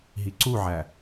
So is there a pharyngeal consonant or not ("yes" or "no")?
yes